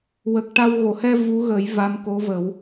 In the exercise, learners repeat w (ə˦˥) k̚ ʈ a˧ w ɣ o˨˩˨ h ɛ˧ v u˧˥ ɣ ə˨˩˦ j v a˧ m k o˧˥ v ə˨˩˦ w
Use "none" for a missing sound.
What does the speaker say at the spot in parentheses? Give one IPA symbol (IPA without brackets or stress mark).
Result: ə˨˩